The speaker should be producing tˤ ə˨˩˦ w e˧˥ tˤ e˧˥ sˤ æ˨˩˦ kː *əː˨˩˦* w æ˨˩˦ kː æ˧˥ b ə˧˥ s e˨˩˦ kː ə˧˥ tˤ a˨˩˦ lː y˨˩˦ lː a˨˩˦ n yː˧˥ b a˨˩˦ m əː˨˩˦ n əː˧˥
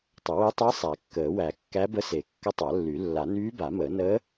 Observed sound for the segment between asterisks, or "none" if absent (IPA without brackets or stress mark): əː˨˩˦